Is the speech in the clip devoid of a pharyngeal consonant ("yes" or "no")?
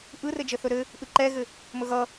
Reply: yes